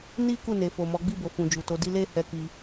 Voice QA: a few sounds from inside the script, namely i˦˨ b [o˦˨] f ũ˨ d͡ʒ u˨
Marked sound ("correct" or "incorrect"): incorrect